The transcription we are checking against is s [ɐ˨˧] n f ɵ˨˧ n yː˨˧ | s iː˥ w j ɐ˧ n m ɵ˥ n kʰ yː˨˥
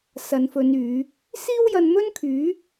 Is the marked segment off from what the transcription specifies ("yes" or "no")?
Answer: no